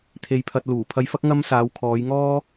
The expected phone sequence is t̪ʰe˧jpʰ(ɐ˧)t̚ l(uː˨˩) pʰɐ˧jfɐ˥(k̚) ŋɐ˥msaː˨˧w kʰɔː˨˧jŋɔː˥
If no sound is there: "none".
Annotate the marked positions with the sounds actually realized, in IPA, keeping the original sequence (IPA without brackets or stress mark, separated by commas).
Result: ɐ˧, uː˨˩, k̚